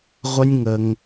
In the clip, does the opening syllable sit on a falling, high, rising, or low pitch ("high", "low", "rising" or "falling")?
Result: high